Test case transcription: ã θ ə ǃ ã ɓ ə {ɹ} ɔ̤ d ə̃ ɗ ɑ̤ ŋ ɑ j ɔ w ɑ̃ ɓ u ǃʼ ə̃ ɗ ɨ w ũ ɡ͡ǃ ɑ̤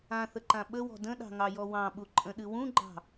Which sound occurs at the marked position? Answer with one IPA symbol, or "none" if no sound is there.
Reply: w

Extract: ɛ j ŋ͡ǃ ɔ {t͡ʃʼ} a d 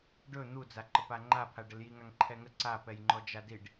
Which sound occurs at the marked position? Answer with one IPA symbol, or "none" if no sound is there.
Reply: d͡ʒ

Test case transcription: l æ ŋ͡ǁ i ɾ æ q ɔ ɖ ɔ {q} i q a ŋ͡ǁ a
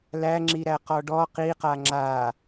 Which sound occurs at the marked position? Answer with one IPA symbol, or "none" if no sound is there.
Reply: q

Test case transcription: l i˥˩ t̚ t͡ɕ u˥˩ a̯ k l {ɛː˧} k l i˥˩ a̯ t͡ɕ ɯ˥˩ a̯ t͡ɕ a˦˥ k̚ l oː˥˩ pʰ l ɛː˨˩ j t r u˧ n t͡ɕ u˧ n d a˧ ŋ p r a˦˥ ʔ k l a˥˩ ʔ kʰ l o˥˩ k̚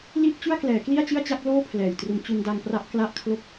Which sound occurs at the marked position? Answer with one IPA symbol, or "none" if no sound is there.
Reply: ɛː˩˦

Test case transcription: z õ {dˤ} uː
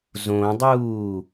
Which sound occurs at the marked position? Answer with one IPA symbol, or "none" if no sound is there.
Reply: dˤ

